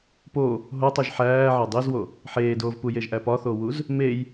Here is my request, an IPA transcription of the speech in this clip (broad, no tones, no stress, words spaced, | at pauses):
po | ɦotˤuʒ ħæː ʕædˤizwo | ħeːdoːvpujeʒ ʔæpɒθowuz | mej